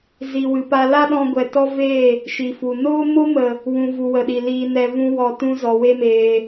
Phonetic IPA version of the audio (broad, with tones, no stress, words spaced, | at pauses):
zi˨wɨ˨pa˧ la˦ɗɔ̃˧ɡʷɛ˨ tɔ˦veː˦˨ | ʃi˨fu˨ noː˦mo˦mə˨ | wũ˧ vu˨wə˨ɗi˨ liː˧nɛ˧ vũ˦wɔ˧tũ˦ zɔ˨we˦ meː˧